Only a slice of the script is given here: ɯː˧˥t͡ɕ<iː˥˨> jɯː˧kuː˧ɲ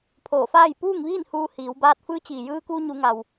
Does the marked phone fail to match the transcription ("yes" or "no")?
yes